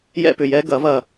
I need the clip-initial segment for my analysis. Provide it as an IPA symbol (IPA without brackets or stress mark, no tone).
j